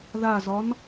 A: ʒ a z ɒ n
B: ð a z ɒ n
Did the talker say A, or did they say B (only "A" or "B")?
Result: B